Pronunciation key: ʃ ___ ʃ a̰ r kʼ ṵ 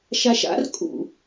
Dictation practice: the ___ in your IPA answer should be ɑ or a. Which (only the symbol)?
a